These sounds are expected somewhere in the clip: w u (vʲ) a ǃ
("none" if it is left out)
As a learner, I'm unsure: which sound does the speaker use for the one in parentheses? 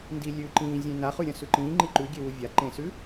vʲ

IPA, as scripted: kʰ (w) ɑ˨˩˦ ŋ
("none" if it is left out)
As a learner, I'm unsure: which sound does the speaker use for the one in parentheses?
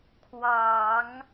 w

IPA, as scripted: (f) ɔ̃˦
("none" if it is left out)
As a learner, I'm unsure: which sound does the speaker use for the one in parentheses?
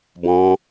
b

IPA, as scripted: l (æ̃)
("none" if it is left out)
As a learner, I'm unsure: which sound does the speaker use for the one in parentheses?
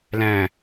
æ̃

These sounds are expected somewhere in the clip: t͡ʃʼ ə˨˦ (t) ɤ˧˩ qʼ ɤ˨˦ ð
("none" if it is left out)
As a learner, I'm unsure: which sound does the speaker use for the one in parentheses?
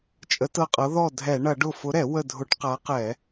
t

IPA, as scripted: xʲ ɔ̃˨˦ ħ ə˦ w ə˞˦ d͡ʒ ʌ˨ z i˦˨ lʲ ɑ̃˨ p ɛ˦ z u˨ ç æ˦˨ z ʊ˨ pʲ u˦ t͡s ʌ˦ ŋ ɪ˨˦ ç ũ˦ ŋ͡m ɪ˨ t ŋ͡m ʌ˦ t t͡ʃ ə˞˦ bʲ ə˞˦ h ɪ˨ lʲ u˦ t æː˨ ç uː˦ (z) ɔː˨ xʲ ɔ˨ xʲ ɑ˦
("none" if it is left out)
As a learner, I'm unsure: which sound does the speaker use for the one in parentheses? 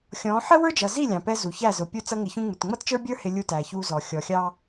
z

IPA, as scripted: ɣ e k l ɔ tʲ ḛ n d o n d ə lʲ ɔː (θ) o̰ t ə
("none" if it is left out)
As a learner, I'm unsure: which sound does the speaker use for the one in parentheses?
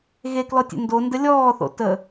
θ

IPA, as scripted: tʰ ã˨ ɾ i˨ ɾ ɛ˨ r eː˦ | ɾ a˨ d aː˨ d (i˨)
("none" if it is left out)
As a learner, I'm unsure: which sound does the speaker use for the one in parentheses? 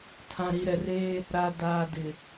ɪ˨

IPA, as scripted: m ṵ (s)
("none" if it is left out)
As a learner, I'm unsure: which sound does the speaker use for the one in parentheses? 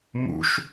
ʃ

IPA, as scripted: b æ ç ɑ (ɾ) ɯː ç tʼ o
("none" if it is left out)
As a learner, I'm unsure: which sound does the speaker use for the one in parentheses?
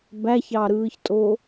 ɾ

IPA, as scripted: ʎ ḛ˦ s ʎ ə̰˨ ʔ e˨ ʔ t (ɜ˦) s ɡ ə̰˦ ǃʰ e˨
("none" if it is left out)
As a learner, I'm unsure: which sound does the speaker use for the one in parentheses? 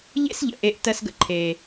ɜ˦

